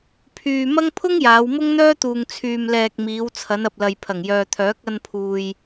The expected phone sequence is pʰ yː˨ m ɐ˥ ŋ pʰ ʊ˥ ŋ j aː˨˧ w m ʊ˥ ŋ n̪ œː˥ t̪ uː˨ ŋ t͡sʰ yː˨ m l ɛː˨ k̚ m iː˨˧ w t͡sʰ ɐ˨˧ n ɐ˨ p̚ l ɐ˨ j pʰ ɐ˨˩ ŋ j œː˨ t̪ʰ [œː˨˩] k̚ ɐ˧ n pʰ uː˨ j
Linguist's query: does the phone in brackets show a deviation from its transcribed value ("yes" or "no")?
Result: yes